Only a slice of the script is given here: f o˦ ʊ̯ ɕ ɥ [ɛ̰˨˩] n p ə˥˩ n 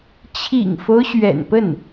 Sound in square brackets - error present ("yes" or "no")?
no